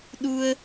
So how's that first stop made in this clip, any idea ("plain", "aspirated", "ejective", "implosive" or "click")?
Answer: implosive